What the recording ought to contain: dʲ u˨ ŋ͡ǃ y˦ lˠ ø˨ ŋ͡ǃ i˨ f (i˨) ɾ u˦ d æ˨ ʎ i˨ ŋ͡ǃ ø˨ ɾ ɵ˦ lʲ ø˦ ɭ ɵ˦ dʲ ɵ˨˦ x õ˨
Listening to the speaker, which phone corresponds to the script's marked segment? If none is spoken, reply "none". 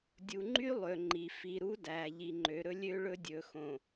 i˨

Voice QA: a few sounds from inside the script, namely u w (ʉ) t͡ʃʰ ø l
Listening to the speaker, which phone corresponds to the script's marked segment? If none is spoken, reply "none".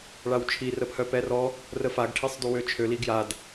ø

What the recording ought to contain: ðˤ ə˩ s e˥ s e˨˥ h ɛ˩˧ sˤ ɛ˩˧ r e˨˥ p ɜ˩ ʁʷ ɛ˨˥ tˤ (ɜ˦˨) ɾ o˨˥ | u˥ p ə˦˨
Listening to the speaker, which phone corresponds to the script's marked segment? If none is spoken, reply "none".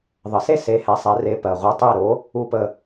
ɛ˦˨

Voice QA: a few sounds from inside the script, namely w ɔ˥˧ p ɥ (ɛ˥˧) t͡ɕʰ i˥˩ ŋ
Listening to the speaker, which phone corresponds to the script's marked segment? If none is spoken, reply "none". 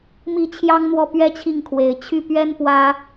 ɛ˥˧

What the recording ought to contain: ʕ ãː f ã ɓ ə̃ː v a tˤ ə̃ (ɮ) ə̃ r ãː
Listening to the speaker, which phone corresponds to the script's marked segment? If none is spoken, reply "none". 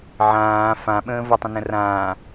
n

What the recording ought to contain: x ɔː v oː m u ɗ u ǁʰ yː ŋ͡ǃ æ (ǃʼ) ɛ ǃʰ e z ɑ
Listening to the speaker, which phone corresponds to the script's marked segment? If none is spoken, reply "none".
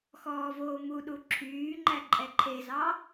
ǃʼ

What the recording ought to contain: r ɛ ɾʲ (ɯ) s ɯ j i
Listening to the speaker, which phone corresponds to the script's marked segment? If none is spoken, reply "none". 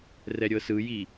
ɤ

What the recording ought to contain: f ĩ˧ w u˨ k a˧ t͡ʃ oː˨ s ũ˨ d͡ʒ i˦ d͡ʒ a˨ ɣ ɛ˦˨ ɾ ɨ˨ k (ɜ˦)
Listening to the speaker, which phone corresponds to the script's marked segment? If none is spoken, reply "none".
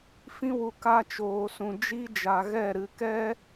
ɛ˦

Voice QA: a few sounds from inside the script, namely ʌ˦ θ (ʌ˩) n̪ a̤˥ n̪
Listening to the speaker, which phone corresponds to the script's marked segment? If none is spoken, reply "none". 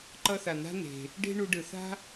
a˩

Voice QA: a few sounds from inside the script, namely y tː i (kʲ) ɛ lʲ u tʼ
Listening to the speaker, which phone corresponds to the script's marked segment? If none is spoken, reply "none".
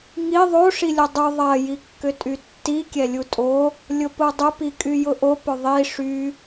kʲ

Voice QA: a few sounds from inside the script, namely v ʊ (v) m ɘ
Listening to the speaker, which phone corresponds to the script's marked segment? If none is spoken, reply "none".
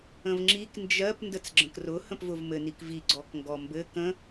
v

